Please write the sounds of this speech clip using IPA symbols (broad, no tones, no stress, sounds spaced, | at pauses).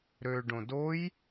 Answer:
ɾ ø ɖ õ d o j